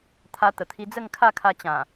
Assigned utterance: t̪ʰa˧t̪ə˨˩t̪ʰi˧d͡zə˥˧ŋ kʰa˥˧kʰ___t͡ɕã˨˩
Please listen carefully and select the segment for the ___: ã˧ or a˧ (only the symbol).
a˧